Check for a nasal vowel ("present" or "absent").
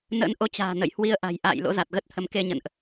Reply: absent